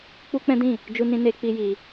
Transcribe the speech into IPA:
k͡p u˦ k͡p ɛ̃˦ d ĩ˦˨ | d͡ʒ u˧ n ĩ˧ n e˦ k͡p i˦ j i˧

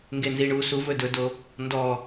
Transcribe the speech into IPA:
ŋ ɡ e n z i ɳ u s u v ɵ d ɵ d o | n d ɔ

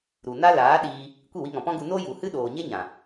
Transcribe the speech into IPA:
ɾ u˨ n a˦ l aː˨˦ ɗ iː˧ | kʷ i˦˨ w i˧ ŋ ɔ̃˨ p ɔ̃˦ ɡ u˧ n o˦ j u˨ h ɨ˦ ɗ oː˨ ɲ e˦ ɲ ã˨

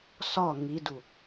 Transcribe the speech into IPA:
s ɒ ŋ i d u

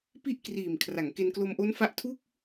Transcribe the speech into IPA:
p i˥˩ ʔ k r iː˨˩ m kʰ r a˩˦ ŋ k e˧ n k l o˧ m ʔ o˦˥ n f a˦˥ ʔ tʰ u˥˩ k̚

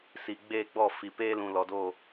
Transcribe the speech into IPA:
s iː˨ ɡ͡b eː˦˨ ɡ͡b ɔ˦˨ f i˨ p eː˦ l ũ˨ l ɔ˨ d oː˦˨

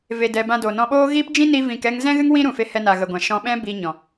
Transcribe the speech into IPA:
v e˧ d ɛ˧ b ã˧ d o˨ n ɔ̃˧ ɓ oː˦ ɣ iː˦ p d͡ʒ ĩ˦ n i˦ v ĩ˧ k ɛ˦ ŋ z ɛ̃˦ ɣ ɨ˦ ŋ w ĩ˦ ɾ ũ˨ f e˧ h ɛ˧ n a˨ ɣ ə˨ ɡʷ ã˨ ʃ ɔ̃˧ ɓ ɛ̃˦ b iː˧ ɲ ɔ̃˨

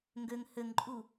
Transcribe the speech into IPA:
ŋ ɡ ø ŋ h ø ŋ ǃʼ u

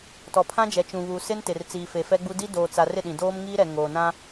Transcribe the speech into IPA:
t ɔ˨ pʰ ã˦ d͡ʒ ɛ˨ t͡ʃ ũ˨ β u˨ s ɪ˦ n t ɪ˨ r t͡s iː˨ f e˨ f ɛ˦ ɡ͡b u˦ d i˦ d oː˨ t͡s a˨ r ɪ˦˨ ɗ ĩ˨ d oː˦ m ŋ iː˦ ɾ ɛ˨ ŋ oː˨ n ã˦

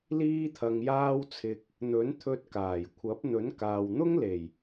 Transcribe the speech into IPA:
l iː˥ t̪ʰ ɐ˧ ŋ j aː˥ w t͡sʰ ɪ˧ k̚ | n̪ ɵ˨˥ n t̪ʰ ɵ˧ t̚ k aː˨˩ j kʷʰ ɐ˨˥ p̚ n̪ ɵ˨˥ n k aː˨ w n̪ ʊ˥ ŋ l e˨˩ j

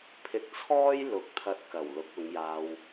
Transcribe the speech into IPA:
pʰ ɪ˧ k̚ t͡sʰ ɔː˥ j l ʊ˨˥ k̚ t̪ʰ ɐ˧ t̚ k ɐ˨˩ w l ʊ˨˥ k̚ ʊ˨˧ ŋ j aː˧ w

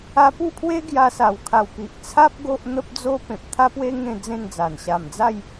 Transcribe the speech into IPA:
a˧ p u˥˧ pʰ w e˦ ɡ j a˧ s a˨˩ w kʰ a˨˩ w p i˨ ʔ t͡sʰ a˦ p̚ ɡ o˦ ʔ n̪ ə˦ p̚ d͡z o˦ p ẽ˨ p̚ t̪ʰ a˦ p w e˦ ŋ ẽ˥˧ d͡z ẽ˥˧ n d͡z a˨˩ n ɕ a˨˩ m d͡z a˥˧ j

